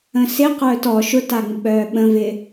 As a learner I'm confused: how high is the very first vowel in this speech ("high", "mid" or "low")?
mid